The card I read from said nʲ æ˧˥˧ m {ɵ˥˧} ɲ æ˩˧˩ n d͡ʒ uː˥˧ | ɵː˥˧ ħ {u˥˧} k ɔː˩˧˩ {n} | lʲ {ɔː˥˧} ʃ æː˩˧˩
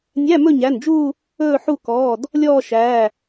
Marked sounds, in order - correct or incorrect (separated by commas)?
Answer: correct, correct, incorrect, correct